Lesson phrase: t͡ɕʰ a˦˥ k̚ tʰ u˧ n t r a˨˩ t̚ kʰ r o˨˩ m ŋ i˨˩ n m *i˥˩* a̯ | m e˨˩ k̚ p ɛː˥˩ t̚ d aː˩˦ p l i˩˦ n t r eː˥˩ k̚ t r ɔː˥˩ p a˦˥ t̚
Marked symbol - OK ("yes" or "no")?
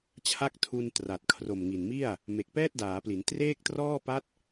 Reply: yes